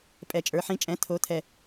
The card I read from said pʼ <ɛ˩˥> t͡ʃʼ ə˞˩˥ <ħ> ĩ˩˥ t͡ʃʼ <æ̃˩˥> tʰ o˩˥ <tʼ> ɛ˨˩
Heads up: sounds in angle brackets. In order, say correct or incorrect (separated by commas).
incorrect, correct, incorrect, incorrect